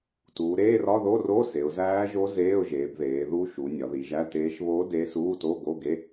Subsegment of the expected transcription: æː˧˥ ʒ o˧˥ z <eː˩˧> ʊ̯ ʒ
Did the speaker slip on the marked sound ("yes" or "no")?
yes